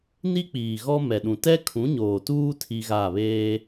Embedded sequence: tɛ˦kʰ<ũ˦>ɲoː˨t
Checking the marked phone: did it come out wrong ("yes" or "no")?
yes